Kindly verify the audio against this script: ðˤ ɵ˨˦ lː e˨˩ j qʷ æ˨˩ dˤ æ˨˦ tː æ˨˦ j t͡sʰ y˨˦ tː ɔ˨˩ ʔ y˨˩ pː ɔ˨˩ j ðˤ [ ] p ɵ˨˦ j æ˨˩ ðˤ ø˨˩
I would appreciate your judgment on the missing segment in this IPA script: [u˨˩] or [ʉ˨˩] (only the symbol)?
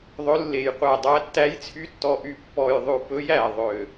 ʉ˨˩